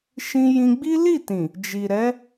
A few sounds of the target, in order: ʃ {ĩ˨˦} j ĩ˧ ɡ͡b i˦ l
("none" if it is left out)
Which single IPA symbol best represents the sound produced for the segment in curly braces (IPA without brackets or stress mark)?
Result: ĩ˧